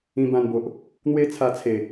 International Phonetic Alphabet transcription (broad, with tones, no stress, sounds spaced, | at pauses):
ĩ˧ b ã˧ n b o˨ ʔ | n̪ w e˦ t͡sʰ a˧ t͡sʰ e˨˩